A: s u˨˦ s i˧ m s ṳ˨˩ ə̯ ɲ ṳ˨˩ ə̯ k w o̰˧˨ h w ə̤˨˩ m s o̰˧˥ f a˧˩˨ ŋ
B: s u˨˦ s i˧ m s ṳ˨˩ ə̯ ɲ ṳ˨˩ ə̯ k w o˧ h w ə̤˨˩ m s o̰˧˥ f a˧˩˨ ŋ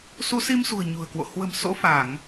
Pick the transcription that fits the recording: A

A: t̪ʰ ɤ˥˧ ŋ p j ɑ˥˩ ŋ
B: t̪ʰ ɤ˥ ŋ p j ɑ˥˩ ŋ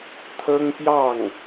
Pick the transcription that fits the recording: B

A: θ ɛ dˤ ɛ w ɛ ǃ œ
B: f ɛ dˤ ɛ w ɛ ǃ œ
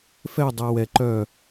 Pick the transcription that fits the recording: B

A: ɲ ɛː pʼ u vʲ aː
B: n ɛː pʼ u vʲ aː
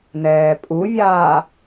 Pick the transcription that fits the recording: B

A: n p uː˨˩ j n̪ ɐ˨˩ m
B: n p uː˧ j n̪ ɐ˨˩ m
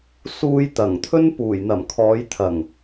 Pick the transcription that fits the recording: A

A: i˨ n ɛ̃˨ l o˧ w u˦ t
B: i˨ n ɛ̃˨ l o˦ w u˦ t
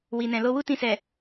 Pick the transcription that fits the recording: A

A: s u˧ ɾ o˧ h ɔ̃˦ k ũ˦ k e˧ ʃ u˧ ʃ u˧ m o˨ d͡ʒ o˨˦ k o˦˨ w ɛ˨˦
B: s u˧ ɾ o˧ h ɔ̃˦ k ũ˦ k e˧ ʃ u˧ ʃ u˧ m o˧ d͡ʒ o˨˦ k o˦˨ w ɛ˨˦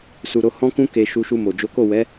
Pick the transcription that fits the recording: A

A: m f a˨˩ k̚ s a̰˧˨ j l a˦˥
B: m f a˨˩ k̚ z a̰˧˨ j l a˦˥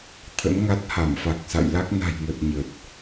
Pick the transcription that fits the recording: A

